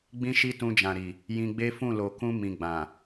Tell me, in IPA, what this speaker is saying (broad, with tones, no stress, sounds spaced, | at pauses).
ɡ͡b ĩ˦ ʃ i˦ t ũ˧ d͡ʒ ã˨ ɾ i˨ | j ĩ˧ ɡ͡b e˦ f ũ˦˨ l o˨ k ũ˧ m ĩ˨ ɡ͡b ã˨